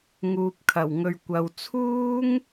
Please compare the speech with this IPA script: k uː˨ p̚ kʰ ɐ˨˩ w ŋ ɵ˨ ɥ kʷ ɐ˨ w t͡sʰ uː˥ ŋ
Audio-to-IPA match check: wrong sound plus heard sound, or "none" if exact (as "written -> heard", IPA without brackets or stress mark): k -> ŋ